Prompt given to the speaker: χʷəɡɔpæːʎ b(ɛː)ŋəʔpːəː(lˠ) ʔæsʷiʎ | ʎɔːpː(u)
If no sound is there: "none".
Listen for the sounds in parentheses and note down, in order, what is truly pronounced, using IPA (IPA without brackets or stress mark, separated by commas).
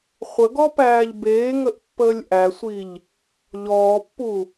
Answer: eː, lʲ, u